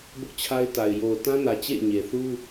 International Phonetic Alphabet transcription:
b ʊ˦ ʔ t͡ɕʰ a˦ ɪ̯ t a˨ ɪ̯ j o˨ ʊ̯ t ã˦ n ä˨ t͡ɕ ḛ˦˨ ɪ̯ ɲ e˨ θ u˦

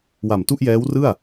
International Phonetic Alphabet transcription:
w a˨˩ m t u˥˩ ʔ j ɛː˦˥ w r ɯ˥˩ a̯

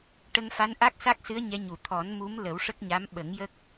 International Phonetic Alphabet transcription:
ʈ ə˧ ŋ f a˧˥ n ʔ a˦˥ k̚ s a˦˥ k̚ s ɨ˧˥ ə̯ ɲ ɛ˧˥ ɲ u˨˩˨ t̪ʰ ɔ˨˩˦ n m u˧˥ m l ə˨˩˦ w ʂ ə˦˥ k̚ ɲ a˧˥ m ɓ ə˨˩˦ ŋ j ə˦˥ k̚

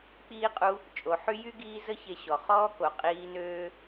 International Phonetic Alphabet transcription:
k͡p iː˥ qʼ u˦ | t͡ʃʼ o˩ ħ y˦ j y˥ ɡ iː˦ z ə˦ ç e˨ ɕ ɔ˩ χ ɔː˦ k o˩ qʼ iː˦ n øː˥

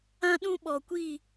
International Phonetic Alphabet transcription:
ã˦ ɗ ũ˦ ɓ ɔ˨ kʷ i˦˨

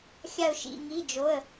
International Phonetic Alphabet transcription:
xʲ a˥˧ ʊ̯ ʃ ḭ˧˥˧ ŋ i˧˥˧ d͡ʒ o˧˥˧ ə̯

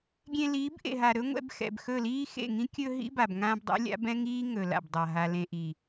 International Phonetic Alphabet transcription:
ɡʲ ẽ˧ l iː˨˦ b ʔ ḛ˨ ɦ a˨ ɾ ɵ˦ ŋʷ ɛ̰˧ b x ɛ̰˨ b x ɵ˦˨ l iː˦ x ḛ˦˨ ŋ ĩ˦ kʲ ɵ˧ ɦ ḭ˦ b a˨ b ŋ ãː˧ b dˤ ḭ˧ lʲ a̰˦ b ɛ̃˦ ŋ iː˦ ŋ ɵ˨ l a̰˨ b dˤ a˨ ɦ a˨ l ẽ˨ ʔ i˨

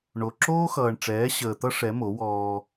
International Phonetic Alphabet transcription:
ɳ o˨ ǁ oː˦ x ʌː˨ ɳ ʈ͡ʂ ɛː˨˦ ɕ əː˨ t̪ ʌ˦ ʂ ɛ˨˦ m o˨˦ w ɔː˦

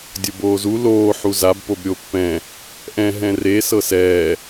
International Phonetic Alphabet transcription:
dʲ o b oː z u l oː ħ u z a b p o b ɾʲ o pː ɛ̃ | ʔ ɛ̃ ɦ ɛ̃ r e s ɤ s ɛː

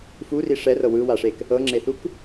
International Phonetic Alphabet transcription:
f u r i ʂ ɛ r ɤ w ɯ w a ʂ e k | ɤ ŋ͡ǁ e θ u k

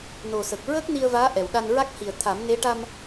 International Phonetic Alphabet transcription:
n o˨˩ s ə˨˩ k̚ ɹ əː˦˥ k̚ n i˧ ə̯ v aː˧˥ ʔ ɛ˨˩ w ɗ a˧ n ɹ a˦˥ k̚ h i˨˩ ə̯ t̪ʰ a˨˩˦ m n e˧˥ ʈ a˧ m

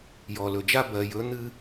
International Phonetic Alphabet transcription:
j ɔ˨ l ɵ˨ d͡ʒ a˦ b ɜ˨ j ɵ˨˦ n̪ ɨ˦

